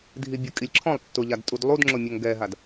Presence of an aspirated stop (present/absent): present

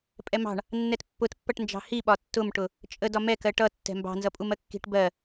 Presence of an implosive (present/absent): present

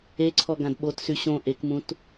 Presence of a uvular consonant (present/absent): absent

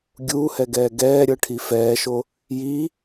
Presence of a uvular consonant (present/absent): absent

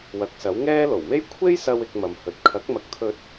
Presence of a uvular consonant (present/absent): absent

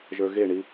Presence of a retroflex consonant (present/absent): present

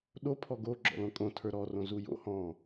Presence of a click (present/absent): present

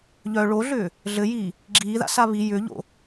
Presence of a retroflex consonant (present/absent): present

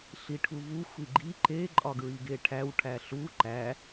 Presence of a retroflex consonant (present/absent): present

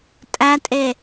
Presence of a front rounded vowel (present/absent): absent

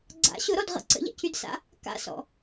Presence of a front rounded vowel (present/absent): present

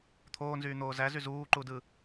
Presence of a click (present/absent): present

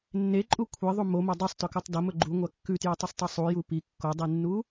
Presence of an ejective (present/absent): present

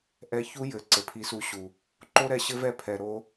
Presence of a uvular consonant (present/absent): absent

